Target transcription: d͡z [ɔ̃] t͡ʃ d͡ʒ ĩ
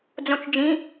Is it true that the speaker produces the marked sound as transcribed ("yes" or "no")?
no